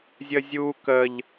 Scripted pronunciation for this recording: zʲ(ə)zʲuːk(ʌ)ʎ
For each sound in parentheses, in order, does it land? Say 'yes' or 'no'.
yes, no

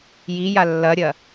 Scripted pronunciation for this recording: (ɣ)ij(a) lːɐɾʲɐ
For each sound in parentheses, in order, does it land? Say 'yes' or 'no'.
no, yes

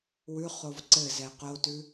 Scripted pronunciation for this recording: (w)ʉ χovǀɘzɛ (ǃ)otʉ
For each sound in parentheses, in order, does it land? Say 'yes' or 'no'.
yes, no

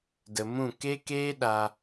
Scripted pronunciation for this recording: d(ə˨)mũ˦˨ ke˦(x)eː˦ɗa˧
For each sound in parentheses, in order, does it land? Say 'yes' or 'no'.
yes, no

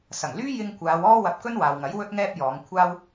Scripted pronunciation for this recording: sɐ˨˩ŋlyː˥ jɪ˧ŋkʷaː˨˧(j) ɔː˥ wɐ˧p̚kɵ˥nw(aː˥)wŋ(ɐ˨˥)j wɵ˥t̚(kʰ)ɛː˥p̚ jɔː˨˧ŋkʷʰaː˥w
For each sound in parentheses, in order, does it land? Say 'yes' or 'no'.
no, no, yes, no

